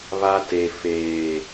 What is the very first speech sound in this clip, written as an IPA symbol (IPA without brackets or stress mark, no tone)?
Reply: β